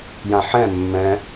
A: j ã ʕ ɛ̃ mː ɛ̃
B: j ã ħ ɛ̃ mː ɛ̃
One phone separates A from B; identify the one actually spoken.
B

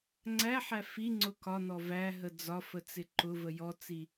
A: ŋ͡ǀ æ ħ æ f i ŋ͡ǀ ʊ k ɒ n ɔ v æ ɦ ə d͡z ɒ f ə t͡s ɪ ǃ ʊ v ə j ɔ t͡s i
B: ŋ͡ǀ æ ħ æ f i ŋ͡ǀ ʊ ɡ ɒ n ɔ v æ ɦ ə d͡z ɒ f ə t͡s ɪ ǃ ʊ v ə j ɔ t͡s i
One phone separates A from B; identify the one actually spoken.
A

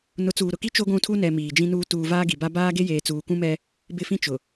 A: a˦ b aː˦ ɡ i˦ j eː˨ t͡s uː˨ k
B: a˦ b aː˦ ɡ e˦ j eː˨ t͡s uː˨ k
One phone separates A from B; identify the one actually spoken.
B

